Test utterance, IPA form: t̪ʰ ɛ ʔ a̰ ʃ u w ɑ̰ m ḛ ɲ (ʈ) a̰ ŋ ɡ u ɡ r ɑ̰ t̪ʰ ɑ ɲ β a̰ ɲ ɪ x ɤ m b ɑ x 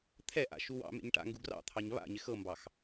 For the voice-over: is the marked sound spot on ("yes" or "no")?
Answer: yes